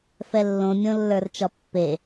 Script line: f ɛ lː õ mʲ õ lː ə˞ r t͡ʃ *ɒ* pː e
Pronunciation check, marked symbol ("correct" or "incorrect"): correct